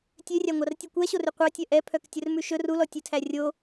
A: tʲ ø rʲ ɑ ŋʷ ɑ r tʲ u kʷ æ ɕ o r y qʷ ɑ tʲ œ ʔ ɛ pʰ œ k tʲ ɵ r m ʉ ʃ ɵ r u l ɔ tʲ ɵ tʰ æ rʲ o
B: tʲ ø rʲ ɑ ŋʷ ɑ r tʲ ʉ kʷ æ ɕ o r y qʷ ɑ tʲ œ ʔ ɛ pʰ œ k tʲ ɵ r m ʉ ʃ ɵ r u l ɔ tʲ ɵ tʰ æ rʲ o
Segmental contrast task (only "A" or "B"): B